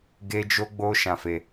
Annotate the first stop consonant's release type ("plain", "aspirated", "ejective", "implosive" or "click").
plain